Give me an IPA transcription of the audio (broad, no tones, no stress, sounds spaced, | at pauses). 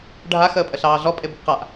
ɖʱ a x əː pʼ ə ɬ ɑː ɮ ɔ pʼ e b ə b q a ʔ